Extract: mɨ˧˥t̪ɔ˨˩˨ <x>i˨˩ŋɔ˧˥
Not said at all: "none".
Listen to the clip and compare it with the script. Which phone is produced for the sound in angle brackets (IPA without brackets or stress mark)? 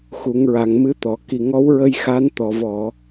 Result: k